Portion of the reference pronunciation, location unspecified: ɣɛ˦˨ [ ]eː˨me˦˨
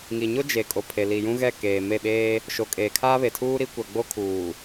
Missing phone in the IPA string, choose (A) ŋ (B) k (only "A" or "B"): B